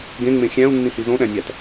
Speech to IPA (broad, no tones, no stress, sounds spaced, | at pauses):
ɡ ẽ ŋ͡m ẽ xʲ æ̃ u̯ nː ĩ h i z õ ɗ æ̃ nʲ æ t